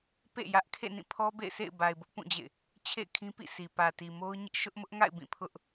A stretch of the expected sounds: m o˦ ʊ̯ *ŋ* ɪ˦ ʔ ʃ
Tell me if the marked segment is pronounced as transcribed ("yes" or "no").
no